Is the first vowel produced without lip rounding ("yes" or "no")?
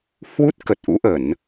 no